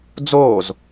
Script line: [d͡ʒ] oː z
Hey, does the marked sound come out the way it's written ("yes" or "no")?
no